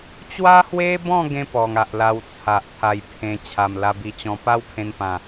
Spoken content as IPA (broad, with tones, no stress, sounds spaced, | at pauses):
t͡ɕ w a˦ h w e˦ b ɔ̃˥˧ ɡ ẽ˦ p ɔ˨˩ ŋ a˨ ʔ l a˧ w t͡sʰ a˨ ʔ t̪ʰ a˧ j pʰ ẽ˧ t͡ɕʰ a˨˩ m l a˧ b i˧ t͡ɕ ɔ̃˧ p a˦ w kʰ ẽ˧ n p ã˨˩